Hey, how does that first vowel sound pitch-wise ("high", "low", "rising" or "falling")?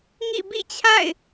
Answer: falling